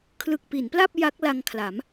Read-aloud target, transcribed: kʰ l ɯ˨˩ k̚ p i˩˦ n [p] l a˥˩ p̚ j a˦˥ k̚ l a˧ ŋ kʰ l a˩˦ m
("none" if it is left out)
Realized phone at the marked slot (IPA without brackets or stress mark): p